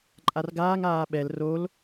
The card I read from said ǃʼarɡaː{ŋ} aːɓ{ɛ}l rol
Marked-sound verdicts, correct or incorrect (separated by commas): correct, correct